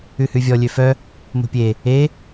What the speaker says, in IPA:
ʉ h ʉ vʲ ɔ lʲ ø f œ | m o̤ pʲ e | e

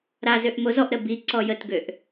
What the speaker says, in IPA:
ɾ a z ø ʔ m o z ɔ ʔ ɾ ə b i ǀ ɔ j ə t ɡ ø ʔ

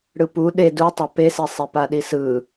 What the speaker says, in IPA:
ɽ ɯ p u ɗ e d u tˤ a p e s i sˤ e p a ɗ i s ɯ

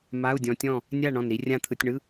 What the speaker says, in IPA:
m a˧˥˧ u̯ dʲ ɔ̃˧ tʲ ɔ̃˥˨ | nʲ a˥˨ ɳ ɔ̃˧˩ n ɾ i˧ rʲ ã˥˨ t̪ʰ ɯ˧ tʲ ɳ ɯ˧˥˧

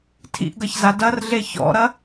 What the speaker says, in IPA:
tʰ ḭ ʔ ɡ ɐ ç z a d ɐ r ɮ e ç ɔ̰ ɾ ɐ

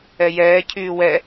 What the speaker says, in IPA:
ɛ j ɛː cʰ yː w ɛ

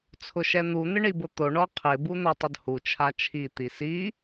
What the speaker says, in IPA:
t͡sʰ ʊ ʃ ɛ n̪ u n̪ ɪ ɳ i b ʊ t̪ o ɳ ɔ qʰ ɪ b u n̪ o tˤ ʊ d h u t͡ʃʰ a t͡ʃʰ i t̪ i s i

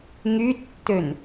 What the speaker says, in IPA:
ŋ y tː ø n

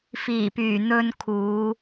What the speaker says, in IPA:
f iː˨˩ p yː˨˩ n̪ ɵ˧ n kʰ uː˨˧

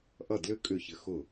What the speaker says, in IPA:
ʔ ʌ˥˩ d l ʏ˥ kʼ ʏ˥˩ ç ɘ˧ x ʊ˧˩

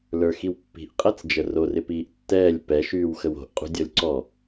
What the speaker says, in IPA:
l ə˞ x i w pː i̤ ʔ qʼ æ t͡s d͡ʒ ə r o r ɪ p iː ʔ tː ɛː lʲ p ɛ ʃ yː w x ə w o̤ ʔ qʼ ṳ dʲ ɔ lʲ ǀ ɔ

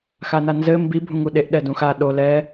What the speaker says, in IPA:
x a n a n z ɘ m b i bʱ ũ ŋ u ɗ e ʔ ɗ ɛ d ũ x a ɗ o l ɛ

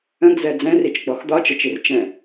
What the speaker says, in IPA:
ə̃ ɡ z ɛ d͡z ɛ̃ r i t͡ʃ ɡ͡b ɔ x d̪ ɒ t͡ʃ ə t͡ʃ i r t͡ʃ ɛ̃

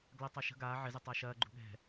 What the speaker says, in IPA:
ɡ l ɐ tˤ ɐ ʃ ə̤ ɡ aː ʕ ɪ z ɛ tˤ a ʃ ɐː ɡ͡ǃ ṳ ɠ ɛ̤

